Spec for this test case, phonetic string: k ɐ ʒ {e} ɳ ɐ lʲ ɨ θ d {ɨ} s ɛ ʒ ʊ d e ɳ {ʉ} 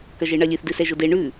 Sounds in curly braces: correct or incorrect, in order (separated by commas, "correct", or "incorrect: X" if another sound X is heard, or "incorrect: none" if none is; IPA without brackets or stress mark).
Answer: correct, correct, correct